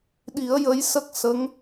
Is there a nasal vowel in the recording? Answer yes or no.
no